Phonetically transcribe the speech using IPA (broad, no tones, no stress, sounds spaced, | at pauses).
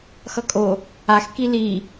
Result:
x ʌ kʼ o | a x k i l i